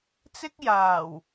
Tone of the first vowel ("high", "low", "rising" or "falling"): high